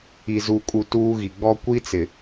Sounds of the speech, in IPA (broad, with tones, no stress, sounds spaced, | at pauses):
i˨ z u˨ kʼ u˨ t uː˦ ɣ i˨ ɡ͡b ɔ˦ kʷ i˦ t͡s ɪ˨